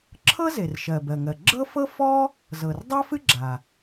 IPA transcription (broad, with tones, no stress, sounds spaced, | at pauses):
ǁʰ ɤ˥ z e˩ r ʃ ɜ˩ b ɜ˩ ŋ ɜ˩ ɡ͡ǁ ɤ˥ f ɤ˥ f ɔ˥ | z ɤ˩ r dˤ ɜ˥ f ɨ˥ ɡ͡ǁ a˩